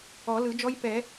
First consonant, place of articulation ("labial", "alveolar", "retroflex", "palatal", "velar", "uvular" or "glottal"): alveolar